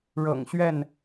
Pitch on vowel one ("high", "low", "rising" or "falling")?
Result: low